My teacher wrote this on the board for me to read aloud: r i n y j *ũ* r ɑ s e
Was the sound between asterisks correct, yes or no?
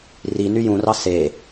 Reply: yes